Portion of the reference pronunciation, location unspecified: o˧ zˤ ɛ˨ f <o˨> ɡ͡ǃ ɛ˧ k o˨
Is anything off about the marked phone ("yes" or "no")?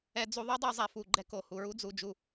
yes